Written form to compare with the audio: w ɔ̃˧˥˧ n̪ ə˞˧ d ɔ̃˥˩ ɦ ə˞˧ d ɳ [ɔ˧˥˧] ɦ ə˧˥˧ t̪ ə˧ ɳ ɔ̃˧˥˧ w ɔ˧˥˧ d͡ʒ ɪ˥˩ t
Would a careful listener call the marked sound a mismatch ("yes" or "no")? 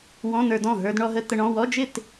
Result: yes